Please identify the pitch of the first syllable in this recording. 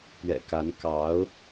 low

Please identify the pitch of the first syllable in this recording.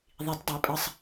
rising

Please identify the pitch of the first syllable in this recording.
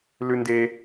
low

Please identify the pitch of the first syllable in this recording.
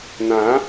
rising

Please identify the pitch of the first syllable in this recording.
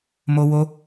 high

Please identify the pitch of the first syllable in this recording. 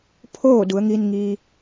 falling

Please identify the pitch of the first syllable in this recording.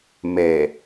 low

